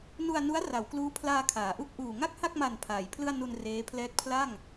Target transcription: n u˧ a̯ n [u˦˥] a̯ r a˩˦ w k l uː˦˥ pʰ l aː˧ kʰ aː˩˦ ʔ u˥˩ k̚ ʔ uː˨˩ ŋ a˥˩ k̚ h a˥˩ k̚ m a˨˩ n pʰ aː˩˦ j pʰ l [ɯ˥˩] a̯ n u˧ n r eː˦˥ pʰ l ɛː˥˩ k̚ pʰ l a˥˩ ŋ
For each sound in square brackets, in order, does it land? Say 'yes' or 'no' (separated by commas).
yes, yes